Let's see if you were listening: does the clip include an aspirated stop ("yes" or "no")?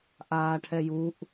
yes